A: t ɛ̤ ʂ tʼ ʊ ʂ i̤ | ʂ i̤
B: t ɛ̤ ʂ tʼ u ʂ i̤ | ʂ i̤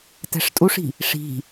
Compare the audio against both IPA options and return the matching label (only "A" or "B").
B